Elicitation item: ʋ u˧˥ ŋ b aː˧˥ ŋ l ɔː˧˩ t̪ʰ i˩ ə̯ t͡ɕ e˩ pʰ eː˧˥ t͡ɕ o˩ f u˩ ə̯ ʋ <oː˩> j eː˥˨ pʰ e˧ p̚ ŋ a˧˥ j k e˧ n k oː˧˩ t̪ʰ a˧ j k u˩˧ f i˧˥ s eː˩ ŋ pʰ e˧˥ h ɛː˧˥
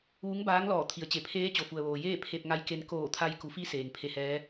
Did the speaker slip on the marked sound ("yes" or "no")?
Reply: no